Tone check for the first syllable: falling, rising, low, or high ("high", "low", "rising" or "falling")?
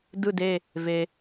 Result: falling